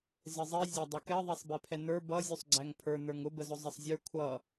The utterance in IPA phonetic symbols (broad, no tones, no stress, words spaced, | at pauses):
zɪzˤi zʲɑdˤʌkɛ ðˤɛsˤbɛpʰɛnə˞ bʌ zʲusˤɡ͡ǀæŋpʰə˞ nə˞ŋʊ bəzʊzˤəsˤzʲə˞ kʷʰʌ